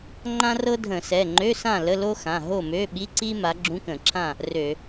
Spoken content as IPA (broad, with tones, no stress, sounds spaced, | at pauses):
ŋ͡ǃ ã˥ r ɤ˥ dʱ ə̃˧˩˧ s ɛ˩˧˩ ŋ͡ǃ ø˧˥˧ s ã˥˨ l ə˧˥˧ l o˥ x ã˩˧˩ ɦ o˥˨ m ø˧˥˧ ɓ i˧˥˧ ǀ i˥ m a˨˦ ɡ͡ǁ ũ˧˥˧ k ə̃˧˩˧ ǁʰ ã˥˨ | r ø˧˩˧